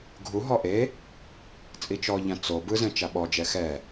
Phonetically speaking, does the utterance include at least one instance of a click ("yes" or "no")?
no